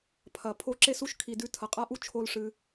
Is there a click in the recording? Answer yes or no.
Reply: yes